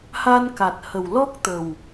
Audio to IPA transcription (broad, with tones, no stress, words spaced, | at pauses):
ha˧nka˨˩t̚ hə˨˩wlɔ˦˥k̚t̪ə˨˩w